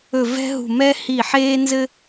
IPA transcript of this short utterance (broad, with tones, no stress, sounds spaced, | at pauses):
ɵ˦˨ v ɛ̤˥ ɦ ṳ˦˨ m ɛ˥ h i˦˨ ħ eː˥ n z ɘ˥